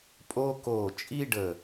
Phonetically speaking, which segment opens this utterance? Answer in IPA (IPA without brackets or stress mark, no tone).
pʼ